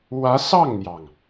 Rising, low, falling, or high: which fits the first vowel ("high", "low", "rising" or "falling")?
rising